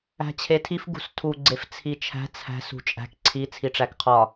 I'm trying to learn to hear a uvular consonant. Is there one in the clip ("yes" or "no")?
yes